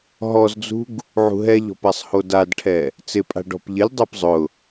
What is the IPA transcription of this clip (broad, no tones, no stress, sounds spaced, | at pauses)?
ɦ ɔ z d͡z ṳ ɡ | ʕ ṳ ɦ ɛ ʎ ɔ̤ p a sˤ h o d a d ʈʰ ɛ | t͡s ɪ pʼ a̤ ɖ ɔ̤ p ʎ ɪ lʲ dˤ a p zˤ ʊ